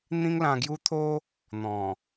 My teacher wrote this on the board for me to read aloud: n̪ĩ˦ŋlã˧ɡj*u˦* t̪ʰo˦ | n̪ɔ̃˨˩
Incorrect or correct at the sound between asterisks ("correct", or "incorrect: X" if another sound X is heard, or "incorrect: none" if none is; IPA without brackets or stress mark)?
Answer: correct